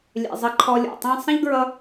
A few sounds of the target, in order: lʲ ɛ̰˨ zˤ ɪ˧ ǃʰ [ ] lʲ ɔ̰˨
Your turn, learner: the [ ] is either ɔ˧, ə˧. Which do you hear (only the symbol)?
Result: ɔ˧